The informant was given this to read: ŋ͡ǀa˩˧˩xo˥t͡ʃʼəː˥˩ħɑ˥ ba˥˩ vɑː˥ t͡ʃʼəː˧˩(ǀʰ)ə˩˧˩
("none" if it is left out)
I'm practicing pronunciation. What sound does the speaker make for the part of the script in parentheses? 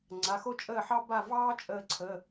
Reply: ǀʰ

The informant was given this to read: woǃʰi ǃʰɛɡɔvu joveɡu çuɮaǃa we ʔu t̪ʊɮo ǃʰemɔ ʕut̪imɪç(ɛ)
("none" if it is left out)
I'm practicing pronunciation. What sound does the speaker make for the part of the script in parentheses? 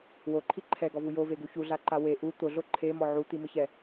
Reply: ɛ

